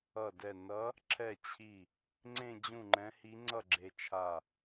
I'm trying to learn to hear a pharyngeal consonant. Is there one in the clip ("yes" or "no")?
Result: no